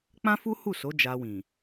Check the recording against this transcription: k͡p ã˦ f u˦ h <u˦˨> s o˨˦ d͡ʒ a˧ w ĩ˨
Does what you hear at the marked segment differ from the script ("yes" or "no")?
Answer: no